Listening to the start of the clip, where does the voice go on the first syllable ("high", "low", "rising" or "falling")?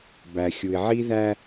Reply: low